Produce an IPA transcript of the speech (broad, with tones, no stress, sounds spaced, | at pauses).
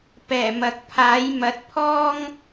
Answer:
p ɛː˨˩ m ɐ˨ k̚ pʰ aː˨˥ j m ɐ˨˥ t̚ pʰ ɔː˥ ŋ